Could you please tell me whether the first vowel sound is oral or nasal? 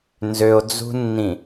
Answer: oral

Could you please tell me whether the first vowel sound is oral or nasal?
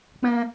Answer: nasal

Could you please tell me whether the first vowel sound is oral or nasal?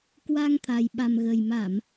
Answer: oral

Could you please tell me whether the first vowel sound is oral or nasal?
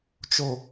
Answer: oral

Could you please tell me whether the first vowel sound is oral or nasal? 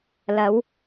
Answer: oral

